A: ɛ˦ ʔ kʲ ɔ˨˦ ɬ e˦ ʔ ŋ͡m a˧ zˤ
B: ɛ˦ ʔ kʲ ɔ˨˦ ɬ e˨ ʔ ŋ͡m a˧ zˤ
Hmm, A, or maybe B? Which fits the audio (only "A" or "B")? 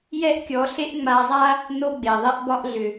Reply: A